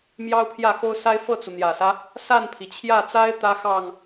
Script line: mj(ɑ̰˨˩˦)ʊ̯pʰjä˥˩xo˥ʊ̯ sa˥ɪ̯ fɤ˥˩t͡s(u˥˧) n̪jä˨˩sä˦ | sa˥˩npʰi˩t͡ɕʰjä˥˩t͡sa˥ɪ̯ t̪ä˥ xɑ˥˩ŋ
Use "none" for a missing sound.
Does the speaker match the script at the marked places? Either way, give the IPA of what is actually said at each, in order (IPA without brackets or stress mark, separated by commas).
ɑ˥, u˩